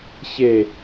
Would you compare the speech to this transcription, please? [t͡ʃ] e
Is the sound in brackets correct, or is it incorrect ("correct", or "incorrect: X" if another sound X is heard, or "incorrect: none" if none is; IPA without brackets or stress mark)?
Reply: incorrect: ç